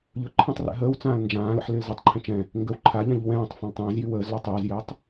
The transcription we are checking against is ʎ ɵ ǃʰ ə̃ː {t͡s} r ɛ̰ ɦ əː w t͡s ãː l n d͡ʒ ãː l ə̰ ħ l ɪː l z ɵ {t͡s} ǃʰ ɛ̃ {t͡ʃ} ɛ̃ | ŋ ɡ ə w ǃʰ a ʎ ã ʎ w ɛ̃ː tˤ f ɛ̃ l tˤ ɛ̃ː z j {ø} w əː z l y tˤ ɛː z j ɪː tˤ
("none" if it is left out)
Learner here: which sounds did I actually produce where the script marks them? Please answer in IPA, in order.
tˤ, tˤ, t͡ʃ, y

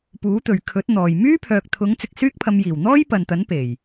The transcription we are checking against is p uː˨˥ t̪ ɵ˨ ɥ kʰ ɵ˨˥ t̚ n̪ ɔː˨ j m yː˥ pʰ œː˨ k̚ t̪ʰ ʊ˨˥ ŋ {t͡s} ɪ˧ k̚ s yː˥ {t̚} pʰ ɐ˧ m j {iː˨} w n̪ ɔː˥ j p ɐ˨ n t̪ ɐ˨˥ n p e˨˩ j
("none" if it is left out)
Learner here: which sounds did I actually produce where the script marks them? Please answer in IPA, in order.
t͡s, k̚, iː˨˩

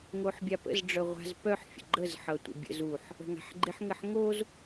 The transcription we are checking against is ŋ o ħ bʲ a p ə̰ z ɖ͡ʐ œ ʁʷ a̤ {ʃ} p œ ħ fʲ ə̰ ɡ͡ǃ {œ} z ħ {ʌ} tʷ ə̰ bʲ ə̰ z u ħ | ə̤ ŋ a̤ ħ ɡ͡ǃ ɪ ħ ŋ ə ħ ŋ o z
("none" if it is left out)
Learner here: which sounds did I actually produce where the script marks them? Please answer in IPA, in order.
z, ə, ʌ

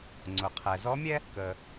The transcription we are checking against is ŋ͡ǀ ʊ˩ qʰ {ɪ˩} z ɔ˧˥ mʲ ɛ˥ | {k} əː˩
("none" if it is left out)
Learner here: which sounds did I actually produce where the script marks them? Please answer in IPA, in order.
ɛ˩, k

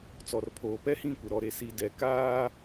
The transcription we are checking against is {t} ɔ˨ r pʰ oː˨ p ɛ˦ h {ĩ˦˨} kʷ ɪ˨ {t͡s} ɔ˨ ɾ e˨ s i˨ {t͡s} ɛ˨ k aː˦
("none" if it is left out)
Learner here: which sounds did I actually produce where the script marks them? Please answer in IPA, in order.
t͡s, ĩ˦˨, ɾ, d

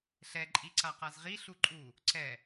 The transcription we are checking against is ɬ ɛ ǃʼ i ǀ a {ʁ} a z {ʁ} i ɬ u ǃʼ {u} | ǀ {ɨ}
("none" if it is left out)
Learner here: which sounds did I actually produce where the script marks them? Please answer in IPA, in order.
q, ʁ, u, ɛ

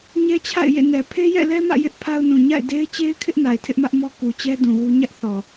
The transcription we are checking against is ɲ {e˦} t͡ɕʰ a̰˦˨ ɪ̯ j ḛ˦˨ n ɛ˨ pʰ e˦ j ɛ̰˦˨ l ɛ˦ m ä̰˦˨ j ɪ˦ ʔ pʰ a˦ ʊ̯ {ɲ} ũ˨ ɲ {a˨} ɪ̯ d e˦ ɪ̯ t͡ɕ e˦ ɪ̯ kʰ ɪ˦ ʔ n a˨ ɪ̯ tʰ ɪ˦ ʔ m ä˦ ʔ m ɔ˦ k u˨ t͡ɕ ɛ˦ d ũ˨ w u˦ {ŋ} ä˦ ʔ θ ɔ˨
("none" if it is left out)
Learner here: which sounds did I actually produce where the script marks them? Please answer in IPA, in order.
ɛ˦, n, a̰˦˨, ɲ

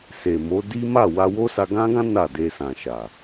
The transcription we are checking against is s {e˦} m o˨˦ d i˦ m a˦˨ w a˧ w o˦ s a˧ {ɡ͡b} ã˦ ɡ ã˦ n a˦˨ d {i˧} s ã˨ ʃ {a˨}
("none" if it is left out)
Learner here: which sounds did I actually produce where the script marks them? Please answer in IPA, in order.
e˨, ɡ, e˧, a˨

